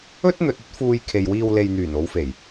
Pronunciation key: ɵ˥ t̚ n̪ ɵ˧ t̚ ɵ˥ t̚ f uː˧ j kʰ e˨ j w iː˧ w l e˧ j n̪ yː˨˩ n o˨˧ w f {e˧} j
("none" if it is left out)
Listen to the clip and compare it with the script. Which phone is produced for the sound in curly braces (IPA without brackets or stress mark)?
e˨˩